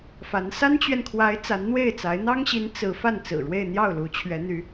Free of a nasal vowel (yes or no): yes